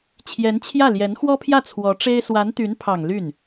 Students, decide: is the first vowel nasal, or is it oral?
oral